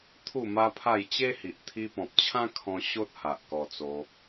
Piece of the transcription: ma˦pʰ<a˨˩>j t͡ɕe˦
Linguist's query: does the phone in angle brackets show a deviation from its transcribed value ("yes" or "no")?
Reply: yes